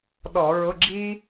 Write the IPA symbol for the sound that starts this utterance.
ɗ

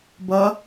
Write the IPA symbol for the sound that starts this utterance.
b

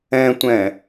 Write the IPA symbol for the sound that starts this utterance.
ɛ̃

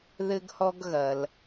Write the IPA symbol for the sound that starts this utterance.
ð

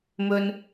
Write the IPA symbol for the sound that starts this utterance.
m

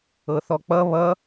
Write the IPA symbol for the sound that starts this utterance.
ɤ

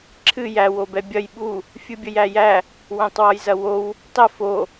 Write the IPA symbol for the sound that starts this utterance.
ǁʰ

